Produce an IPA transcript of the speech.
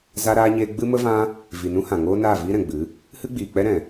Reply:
za˧ɾaː˧ɲeː˧ ɡ͡bɨ˦mə˦vã˦ | vi˨nũ˦hã˨ŋoː˦ naː˦˨viː˦ɾɛ̃˨ɡ͡bɨ˨˦ | hɨ˦ɡ͡biː˨k͡pɛ˦ ɾɛ̃˨

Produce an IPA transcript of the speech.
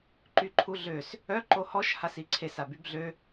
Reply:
ǃyǃʰuɮøs | œ ǃohɔʃ hasiǀʰes abybɮø

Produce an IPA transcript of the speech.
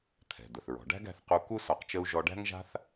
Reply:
t̪ʰɛ̤˩ d̪ə˩θɹɔ̤˩ ɖæ̤˥ɡæ̤˧θ qu˧ ku˥ sɒ˧qt͡ʃə˥u̯ ʒɔ˧ɖæ̤˥ŋʒa̤˥θ

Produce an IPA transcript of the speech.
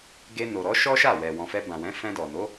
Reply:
ɡe˧no˨ ɾɔ˨˦ ʃɔ˦ʃa˦˨wɛ˨ wɔ̃˨fɛ˧bã˨wɛ̃˨˦ fɛ̃˧dɔ˨no˨˦

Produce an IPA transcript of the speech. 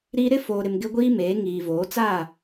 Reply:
ɾi˦ ɾɪ˦foː˨ɾɪ˨m ɡɪ˦ɡʷiː˦meː˨˦ ŋiː˨voː˨˦ t͡sa˦˨

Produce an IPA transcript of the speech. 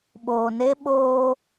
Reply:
ɓoː˨ne˦ ɓoː˦

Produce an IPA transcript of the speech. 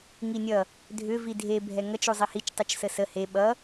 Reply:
ŋinʲʌ | dʱʏ vidʱe bʱɛŋʌt͡ʃ uzˤihit͡ʃ tˤut͡ʃsəsə he ɓʌ

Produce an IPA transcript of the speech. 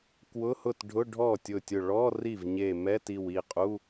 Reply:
kwʊ˧˥˧hʊ˥˩tɖʱʊ˧˥˧ ɖʱɔ˥˩tʲʊ˧˩tʲʊ˧˩ ɭɔ˧˥˧ ri˥˩vɲe˧˩ mɛ˧˥˧ti˧˩w i˥˩qʼu˧˥˧

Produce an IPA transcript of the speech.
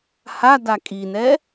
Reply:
hada kʼinɛ

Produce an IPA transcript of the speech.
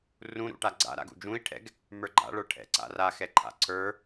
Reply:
rũɾṵ ʈaɡ͡ǀa̰ɾa̰ ɡṵd͡ʒũi̯ʈʰɛ̰ɡ | mə˞ɡ͡ǃa̰ɭə˞ ʈʰɛ̰ǀa̰ ra xɛǃʰa̰ǀʰə˞

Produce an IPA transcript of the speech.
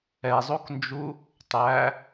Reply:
ɛzˤoknd͡ʒu | tˤæ

